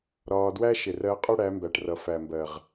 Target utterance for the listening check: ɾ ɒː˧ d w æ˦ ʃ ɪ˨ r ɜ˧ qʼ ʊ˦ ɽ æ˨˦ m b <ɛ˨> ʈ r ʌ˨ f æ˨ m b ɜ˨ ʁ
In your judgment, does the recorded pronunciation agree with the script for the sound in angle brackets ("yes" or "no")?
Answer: no